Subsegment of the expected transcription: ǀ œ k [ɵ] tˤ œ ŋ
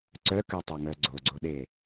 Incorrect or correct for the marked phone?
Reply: incorrect: ø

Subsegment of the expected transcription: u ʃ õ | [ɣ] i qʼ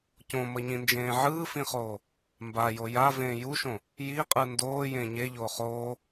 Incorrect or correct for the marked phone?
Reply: incorrect: j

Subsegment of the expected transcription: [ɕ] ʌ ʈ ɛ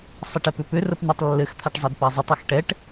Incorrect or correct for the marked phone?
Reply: incorrect: sˤ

